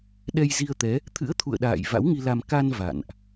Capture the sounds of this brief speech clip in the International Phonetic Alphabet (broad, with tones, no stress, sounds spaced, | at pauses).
ɗ ɛ˧ j z i˧ ə̯ t̪ ɛ˨˦ | t̪ʰ ɨ̰˧˥ ə̯ t̪ʰ ṵ˧˨ ə̯ ɗ a̰ː˧˨ j v a̰˧˥ w ŋ i˧ l a˧ m k a˧ n v a̰˧˨ n ʔ